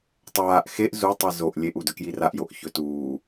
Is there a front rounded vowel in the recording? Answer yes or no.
no